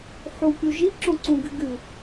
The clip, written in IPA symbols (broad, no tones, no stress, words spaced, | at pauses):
ħukʲu ʒi ǁõǀũɡɨ ɡɨ